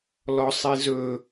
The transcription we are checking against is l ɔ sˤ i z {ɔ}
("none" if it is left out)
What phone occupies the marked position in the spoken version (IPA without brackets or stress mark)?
ɵ